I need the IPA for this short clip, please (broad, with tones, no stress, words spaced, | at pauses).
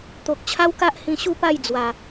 t̪o˨k̚t͡ɕʰa˦wka˦ʔ hĩ˧ɕu˥˧pa˥˧j d͡zwa˨˩